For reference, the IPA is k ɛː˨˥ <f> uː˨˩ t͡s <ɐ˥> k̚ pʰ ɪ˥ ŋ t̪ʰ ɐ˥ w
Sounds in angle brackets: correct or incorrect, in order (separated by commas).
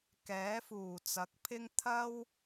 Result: correct, incorrect